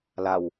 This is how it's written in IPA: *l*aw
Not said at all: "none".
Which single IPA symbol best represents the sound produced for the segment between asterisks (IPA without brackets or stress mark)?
l